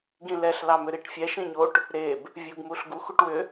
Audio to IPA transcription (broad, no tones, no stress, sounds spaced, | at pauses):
ɡ ĩ l ɛ ɬ l ɑ m ʏ ɾ i ʈ fʲ ɛ ʃ ĩ ɲ o ʈ | ɾ e b | vʲ u ɡ m u ɬ ɡ u x u ʈ w ʏ